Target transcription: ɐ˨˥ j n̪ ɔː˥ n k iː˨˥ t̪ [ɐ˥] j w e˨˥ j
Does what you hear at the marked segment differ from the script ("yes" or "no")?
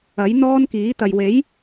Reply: yes